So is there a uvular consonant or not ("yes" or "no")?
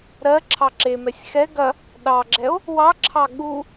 no